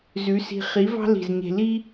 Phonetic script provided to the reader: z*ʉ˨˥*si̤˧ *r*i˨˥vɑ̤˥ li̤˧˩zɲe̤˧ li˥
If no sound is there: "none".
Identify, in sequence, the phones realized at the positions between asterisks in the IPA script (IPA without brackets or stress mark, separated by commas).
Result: ʉ˨˥, χ